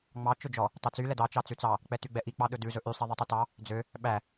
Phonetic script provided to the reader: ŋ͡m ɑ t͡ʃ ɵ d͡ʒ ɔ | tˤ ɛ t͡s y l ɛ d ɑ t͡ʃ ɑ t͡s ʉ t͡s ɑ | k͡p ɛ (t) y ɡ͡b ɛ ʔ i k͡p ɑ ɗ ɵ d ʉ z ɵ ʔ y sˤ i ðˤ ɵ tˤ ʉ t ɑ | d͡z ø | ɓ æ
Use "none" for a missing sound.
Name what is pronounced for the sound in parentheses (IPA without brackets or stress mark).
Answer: t